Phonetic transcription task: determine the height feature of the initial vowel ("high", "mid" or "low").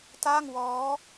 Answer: low